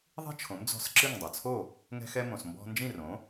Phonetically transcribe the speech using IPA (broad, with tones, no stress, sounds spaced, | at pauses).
ðˤ i̤˥ t͡ʃʰ õ˩˥ m d͡z ɔ̤˧ s ǁ ɨ˥˩ ŋ dˤ ɐ˩ t͡sʰ o˥˩ | ŋ ɛ̤˧ x ɛ˧ m õ˩ s m b ɔ̤˧ n d͡ʒ ĩ˥˩ r õ˩˥